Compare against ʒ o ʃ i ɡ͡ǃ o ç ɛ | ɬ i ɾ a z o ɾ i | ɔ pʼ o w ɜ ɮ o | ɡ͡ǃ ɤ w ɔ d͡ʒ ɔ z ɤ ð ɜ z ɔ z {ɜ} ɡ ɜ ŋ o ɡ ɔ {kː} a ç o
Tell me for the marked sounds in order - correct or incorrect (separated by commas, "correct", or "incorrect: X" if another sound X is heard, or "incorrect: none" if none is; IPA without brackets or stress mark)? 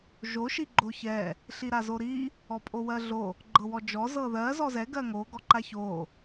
incorrect: ɛ, incorrect: ǃ